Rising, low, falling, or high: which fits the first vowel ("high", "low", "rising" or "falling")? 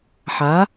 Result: rising